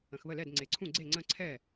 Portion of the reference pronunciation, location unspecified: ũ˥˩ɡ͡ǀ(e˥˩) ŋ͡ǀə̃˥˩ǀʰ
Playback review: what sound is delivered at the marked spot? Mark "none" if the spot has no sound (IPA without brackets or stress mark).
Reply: e˥˩